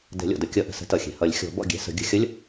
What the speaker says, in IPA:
d ɛ̤˨˩˦ lʲ ɔ̰˩ d ə˨˥ kʲ ʌ˨˩˦ ʔ ə̤˩ s ə̤˨˥ t ʌ˩ xʲ ɛ̤˩ h ʌ˨˩˦ lʲ xʲ ɔ̤˨˩˦ b ɔ̰˥˩ ɡʲ ɛ̤˨˥ s ə̤˨˩˦ ɡʲ ə̤˨˥ xʲ ʌ˧˥˧ lʲ

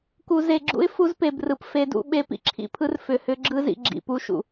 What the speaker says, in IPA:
k u˨ z e˨ ɡ͡ǁ ṵ˦ ɪ̯ f u˦ z p e˨ b r ɯ˨ p f e˨ d ṵ˨ ɓ e˦ p ḭ˨ ǁʰ ḭ˦˨ pʰ ɯ˦ r f ʏ˨ h ʏ˦ ɡ͡ǁ ɯ˦ z ḭ˨ ɡ͡ǁ ḭ˨ p u˦ ʃ ṵ˨

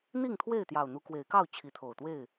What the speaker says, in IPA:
n̪ i˥˨ ŋ t̪ʰ w e˥˨ ɪ̯ t̪ j ɑ˨˩ ʊ̯ n̪ u˨˦ k w e˨˦ ɪ̯ k ɑ˥˨ ʊ̯ t͡ɕʰ i˨˦ t̪ʰ o˨˩ ʊ̯ t̪ w e˥˨ ɪ̯

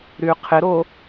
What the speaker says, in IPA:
ɾ y qʰ ɪ ɾ o

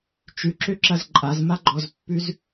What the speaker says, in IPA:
t͡ʃ ʉ ǁ ø ǁ ɐ z ǃʼ a z m a ɡ͡ǃ ɔ z pː ʉ z

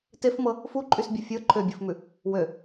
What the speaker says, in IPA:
t e f m ɤ | f u ǃʼ y s bʲ ɤ fʲ ɤ ǃʰ ø bʲ u f m ʉ | w ø

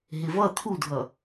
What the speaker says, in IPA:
ɦ ɪ v ʌ t̪ʰ u dʱ ʌ

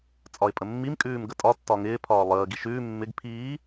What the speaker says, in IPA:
t͡sʼ ɒ ɪ̯ pʼ ə mː i m kʼ ʉː m ɡ ə tʼ ɒ tː ɒ ŋ ɪː pʰ ɒː lˠ əː ɡ i ʃ ʉː mː ɪ ɡ pʰ iː

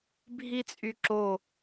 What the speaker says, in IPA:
bʱ i t͡sʼ y ǁ o

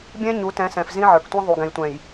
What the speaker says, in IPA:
bʲ ɛ̃˦ ɲ u˨˦ t ɛ̃˨˦ s ɛ̃˨ f z ĩ˦ ʕ ə˞˨ k tʷ ĩ˦ ðˤ u˨ ɡ ɛ̃˨ j tʷ ɛ̃˨ j

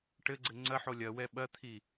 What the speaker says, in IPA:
ʈ ɘ ɡ͡ǀ ɘ ŋ͡ǀ ɐ ħ o lʲ ɐ w ɛ ɓ ɐ t̪ʰ i

